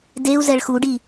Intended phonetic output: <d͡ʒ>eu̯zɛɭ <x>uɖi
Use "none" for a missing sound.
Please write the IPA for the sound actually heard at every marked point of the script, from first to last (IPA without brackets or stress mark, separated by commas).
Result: d, x